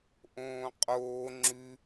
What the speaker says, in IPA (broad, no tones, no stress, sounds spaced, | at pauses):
ʔ õː qʼ oː ŋ͡ǁ ʉ